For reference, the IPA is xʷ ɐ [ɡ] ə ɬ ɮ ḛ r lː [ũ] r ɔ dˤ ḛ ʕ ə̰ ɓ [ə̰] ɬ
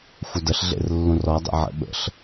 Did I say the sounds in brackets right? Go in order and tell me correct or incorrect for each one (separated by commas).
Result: incorrect, correct, correct